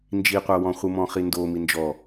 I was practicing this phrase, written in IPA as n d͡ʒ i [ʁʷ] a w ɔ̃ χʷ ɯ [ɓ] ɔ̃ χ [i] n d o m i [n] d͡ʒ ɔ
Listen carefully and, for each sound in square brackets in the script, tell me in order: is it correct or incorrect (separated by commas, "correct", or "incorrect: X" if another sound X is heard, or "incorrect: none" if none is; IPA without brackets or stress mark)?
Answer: incorrect: qʷ, incorrect: m, correct, correct